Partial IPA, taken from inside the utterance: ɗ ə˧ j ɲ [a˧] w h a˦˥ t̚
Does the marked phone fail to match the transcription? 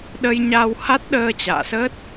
no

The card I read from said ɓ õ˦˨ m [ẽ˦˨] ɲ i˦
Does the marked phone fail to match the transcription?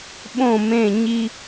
no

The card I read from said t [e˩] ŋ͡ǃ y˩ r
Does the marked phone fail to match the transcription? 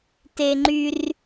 no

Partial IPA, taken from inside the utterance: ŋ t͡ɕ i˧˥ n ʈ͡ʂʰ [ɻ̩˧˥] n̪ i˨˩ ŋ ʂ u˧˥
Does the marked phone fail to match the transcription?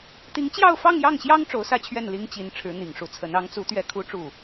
no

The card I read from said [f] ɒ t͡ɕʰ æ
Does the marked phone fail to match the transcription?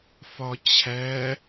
no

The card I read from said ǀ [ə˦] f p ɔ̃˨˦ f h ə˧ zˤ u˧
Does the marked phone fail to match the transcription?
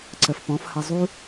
yes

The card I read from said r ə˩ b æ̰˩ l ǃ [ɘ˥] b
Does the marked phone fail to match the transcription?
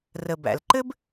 no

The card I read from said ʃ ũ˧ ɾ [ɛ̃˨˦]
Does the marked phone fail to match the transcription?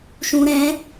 no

